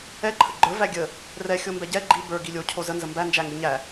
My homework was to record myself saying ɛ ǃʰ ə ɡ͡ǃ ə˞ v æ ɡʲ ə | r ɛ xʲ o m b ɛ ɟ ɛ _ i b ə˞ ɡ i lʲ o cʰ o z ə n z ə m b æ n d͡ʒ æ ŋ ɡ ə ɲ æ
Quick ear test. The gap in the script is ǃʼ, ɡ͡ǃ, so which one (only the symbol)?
ɡ͡ǃ